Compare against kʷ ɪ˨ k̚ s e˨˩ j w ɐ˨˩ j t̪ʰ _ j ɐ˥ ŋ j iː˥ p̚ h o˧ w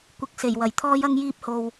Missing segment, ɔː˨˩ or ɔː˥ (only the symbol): ɔː˥